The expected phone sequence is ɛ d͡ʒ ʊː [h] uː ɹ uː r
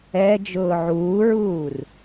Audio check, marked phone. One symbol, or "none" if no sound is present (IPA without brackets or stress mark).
ʕ